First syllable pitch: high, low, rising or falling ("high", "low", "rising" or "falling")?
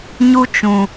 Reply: high